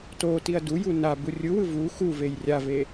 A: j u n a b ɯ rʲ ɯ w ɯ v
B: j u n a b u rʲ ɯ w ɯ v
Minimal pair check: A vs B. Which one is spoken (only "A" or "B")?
B